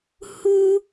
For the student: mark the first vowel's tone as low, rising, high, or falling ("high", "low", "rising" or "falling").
high